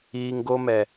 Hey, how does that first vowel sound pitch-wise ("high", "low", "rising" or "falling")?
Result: low